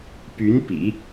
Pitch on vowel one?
rising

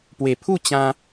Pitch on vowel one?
low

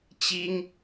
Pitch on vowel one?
high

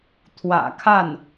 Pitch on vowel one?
low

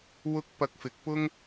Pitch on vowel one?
high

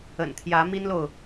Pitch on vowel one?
low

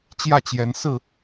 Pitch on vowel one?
falling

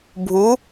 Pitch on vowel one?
rising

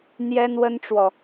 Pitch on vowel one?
high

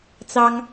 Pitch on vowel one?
high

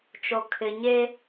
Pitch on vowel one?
low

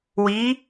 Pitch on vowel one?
rising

